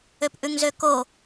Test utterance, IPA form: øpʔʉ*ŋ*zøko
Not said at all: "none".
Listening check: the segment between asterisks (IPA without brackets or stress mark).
ŋ